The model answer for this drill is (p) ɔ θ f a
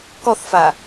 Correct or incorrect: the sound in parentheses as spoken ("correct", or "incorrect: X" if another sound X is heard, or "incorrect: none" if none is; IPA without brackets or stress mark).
incorrect: k